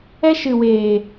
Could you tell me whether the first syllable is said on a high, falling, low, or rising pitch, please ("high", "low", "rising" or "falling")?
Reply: high